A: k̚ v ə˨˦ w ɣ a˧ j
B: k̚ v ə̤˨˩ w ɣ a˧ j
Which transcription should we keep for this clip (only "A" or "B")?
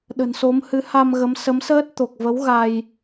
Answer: A